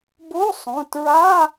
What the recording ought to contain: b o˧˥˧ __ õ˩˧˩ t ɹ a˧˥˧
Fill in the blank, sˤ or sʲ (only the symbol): sˤ